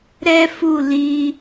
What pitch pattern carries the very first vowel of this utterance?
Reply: high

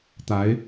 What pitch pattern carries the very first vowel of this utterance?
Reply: rising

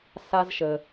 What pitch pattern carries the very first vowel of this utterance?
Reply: high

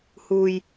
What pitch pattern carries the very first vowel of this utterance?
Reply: low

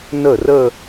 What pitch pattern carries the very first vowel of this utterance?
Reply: falling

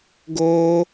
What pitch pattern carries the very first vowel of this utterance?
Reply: high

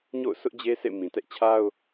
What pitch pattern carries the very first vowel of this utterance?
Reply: falling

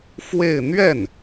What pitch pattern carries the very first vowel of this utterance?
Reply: falling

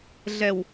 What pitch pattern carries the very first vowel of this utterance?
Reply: low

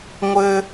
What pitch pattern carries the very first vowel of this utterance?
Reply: high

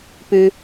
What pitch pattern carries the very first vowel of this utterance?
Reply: high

